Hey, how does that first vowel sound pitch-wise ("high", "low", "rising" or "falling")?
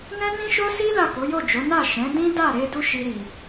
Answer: high